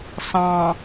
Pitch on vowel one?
low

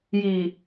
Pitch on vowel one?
low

